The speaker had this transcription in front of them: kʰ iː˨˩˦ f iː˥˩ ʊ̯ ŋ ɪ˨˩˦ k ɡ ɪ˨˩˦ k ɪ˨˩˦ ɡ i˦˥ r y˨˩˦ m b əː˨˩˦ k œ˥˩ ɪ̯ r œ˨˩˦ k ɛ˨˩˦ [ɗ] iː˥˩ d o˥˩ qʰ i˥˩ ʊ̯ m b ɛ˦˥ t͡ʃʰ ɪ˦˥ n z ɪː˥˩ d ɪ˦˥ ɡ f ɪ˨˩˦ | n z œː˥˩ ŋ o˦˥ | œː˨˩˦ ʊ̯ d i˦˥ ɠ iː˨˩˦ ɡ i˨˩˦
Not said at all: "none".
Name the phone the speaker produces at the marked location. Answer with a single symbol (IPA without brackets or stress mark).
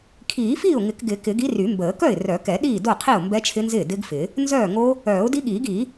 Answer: ɗ